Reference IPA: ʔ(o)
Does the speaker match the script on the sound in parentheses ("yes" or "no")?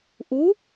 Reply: no